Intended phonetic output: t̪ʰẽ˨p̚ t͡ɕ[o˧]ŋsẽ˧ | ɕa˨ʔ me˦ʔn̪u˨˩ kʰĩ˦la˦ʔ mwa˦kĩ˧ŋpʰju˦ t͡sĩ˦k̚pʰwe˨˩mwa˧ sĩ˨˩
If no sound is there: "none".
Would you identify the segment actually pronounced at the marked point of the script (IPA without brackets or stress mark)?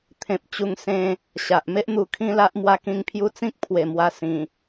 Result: u˧